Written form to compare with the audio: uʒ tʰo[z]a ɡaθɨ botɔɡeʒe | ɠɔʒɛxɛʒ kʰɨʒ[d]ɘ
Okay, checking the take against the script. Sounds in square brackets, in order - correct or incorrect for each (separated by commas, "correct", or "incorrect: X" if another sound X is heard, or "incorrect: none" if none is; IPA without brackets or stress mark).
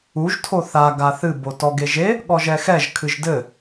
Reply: incorrect: θ, correct